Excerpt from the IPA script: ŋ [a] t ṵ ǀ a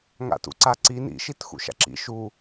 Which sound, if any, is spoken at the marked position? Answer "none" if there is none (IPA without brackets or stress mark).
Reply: a̰